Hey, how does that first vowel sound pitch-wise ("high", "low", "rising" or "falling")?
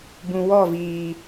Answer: low